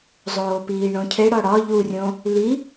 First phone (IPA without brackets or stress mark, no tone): zˤ